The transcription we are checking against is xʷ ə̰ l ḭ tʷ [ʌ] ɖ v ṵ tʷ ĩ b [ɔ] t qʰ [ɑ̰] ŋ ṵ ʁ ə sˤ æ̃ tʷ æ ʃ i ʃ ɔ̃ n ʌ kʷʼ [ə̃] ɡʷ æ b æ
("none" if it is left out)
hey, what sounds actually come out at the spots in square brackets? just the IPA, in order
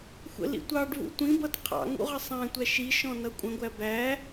ɑ, ʌ, ɑ̰, ə̃

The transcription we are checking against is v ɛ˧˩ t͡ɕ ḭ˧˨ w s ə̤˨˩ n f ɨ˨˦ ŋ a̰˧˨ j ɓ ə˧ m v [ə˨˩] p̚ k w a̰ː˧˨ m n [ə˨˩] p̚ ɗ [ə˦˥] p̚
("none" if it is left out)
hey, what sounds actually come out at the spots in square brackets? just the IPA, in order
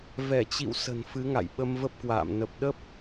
ə˦˥, ə˨˩, ə˦˥

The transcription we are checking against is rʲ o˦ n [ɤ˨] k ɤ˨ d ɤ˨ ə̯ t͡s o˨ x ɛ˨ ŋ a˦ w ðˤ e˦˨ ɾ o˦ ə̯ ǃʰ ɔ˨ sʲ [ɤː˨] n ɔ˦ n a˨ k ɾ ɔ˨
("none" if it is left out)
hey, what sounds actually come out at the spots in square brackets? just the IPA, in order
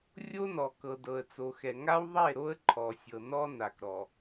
ɔ˨, ɤ˨

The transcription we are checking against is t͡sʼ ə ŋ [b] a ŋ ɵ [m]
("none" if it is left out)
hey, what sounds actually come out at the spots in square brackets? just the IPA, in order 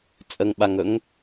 ɓ, ŋ

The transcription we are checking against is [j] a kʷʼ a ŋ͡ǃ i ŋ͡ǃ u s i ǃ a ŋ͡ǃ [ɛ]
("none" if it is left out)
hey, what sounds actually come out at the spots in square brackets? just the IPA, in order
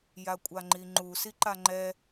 j, ɛ

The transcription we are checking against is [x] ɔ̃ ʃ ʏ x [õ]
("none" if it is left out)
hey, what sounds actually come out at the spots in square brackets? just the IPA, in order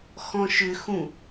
x, ũ

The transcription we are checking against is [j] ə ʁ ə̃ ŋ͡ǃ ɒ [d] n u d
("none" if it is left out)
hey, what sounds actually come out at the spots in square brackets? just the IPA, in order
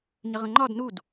ɲ, d

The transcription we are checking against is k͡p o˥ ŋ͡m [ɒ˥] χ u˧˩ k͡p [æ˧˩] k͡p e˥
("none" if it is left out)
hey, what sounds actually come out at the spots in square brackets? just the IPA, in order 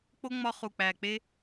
ɒ˥, æ˧˩

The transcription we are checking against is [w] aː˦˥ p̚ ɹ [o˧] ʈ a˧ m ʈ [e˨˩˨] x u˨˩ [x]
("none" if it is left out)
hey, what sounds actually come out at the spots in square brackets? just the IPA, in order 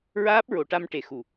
ɹ, o˨˩˨, e˨˩˨, none

